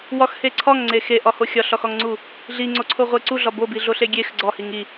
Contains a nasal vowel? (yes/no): no